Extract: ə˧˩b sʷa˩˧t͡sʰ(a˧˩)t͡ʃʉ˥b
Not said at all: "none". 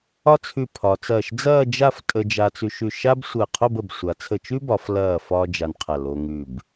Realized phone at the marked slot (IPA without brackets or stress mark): ə˧˩